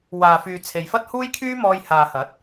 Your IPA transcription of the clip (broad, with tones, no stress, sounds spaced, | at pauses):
w aː˨ f yː˨ t͡sʰ e˨ j f ɐ˥ t̚ h uː˥ j kʰ yː˥ m ɔː˧ j h aː˨ h ɐ˨˥ t̚